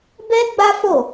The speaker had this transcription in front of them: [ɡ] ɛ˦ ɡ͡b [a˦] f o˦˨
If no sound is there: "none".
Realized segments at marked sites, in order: b, a˦

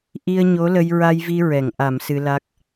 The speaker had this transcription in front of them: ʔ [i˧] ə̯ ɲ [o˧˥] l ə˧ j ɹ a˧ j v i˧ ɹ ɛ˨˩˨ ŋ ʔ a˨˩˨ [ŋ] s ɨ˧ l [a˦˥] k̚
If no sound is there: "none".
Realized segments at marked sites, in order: i˧, o˧˥, m, a˦˥

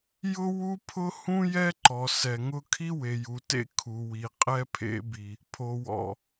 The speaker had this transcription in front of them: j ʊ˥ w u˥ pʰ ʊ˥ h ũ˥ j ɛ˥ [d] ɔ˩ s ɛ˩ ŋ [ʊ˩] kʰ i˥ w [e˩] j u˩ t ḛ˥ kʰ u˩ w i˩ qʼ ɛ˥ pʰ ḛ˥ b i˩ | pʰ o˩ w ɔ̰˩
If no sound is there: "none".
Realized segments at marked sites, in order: ǃ, ʊ˥, e˩

